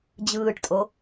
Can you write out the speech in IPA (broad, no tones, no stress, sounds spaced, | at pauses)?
d͡ʑ ɯː ʈ tʼ o